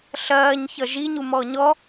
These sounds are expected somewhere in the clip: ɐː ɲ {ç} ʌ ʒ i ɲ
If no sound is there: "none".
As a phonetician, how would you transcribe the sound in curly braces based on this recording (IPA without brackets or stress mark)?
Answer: ç